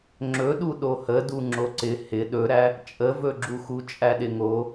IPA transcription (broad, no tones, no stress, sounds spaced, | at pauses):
ŋ͡ǁ ɵ ɗ u ɗ o h ə d u ŋ͡ǁ o ǀ ɪ h ɪ ɗ ɵ ɾ æ | t͡ʃʼ ə v ɵ ɡ͡ǁ u x u t͡ʃʼ æ ɗ ɪ ŋ o